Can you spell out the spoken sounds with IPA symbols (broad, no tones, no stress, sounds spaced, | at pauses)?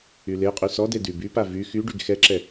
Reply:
y l e qʼ y s ɔ d e d y b y p a v y x y ɖ y ɡ x ɛ ǁ ɛ